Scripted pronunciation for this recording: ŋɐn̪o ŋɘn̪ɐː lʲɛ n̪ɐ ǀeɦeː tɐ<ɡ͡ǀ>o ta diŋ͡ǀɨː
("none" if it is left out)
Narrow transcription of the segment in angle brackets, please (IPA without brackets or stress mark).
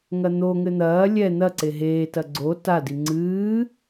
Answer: ɡ͡ǀ